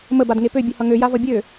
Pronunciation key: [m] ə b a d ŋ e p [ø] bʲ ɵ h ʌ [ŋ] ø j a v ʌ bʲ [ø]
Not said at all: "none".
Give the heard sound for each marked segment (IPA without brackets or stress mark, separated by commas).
m, ø, ŋ, ø